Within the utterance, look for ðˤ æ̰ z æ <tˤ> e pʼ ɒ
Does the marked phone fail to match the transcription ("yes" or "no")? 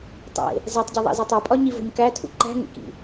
no